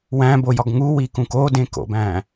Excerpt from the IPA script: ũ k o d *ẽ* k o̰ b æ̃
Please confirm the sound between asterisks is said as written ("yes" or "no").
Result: yes